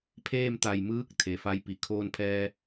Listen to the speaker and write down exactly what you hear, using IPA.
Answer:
pʰeː˥˨mt̪a˧˩j mɯː˧˥k̚ t̪ʰe˩˧fa˧˥jpi˩ kʰoː˧npʰɛː˧

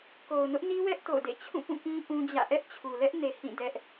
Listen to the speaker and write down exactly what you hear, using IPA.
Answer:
ko˨ʊ̯nʊ˦ʔni˦wɛ˦ʔ to̰˦˨ʊ̯dḛ˦˨ t͡ɕʰũ˦˨ pũ˦˨kĩ˦ ʔũ˦d͡ʑä̰˦˨ ʔɛ˦ʔt͡ɕʰu˨lɛ˦ʔne˨ hĩ˦˨dɛ˦ʔ

